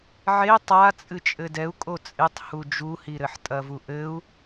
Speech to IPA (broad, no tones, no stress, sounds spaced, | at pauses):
ʕ e tˤ a t͡sʼ ɨ t͡ʃʼ ɘ d ɛ u̯ kʼ o t͡sʼ e tˤ h u d͡ʒ u h i ɾ ɘ ħ tʼ ɐ v u ʔ ɘ u̯